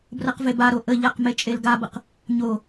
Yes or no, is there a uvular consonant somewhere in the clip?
yes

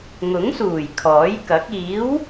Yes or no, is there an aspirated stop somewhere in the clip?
yes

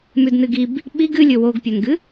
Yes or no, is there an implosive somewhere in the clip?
yes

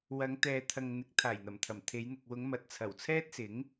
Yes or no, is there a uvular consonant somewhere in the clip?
no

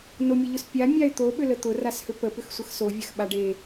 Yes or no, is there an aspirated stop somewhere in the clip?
no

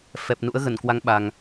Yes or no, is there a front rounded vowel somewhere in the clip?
no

